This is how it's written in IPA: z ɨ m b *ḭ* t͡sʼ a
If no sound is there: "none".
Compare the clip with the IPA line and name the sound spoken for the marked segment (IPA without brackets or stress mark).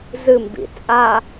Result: ḭ